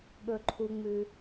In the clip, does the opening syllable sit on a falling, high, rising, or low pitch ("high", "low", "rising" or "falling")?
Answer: low